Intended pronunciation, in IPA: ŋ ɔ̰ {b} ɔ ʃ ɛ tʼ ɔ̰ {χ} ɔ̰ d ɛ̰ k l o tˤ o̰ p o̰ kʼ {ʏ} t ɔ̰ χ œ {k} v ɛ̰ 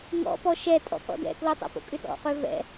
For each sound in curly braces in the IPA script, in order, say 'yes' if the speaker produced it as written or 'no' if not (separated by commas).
no, no, yes, no